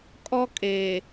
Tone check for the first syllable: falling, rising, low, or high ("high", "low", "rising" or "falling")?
high